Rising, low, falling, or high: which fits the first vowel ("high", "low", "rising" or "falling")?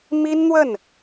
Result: high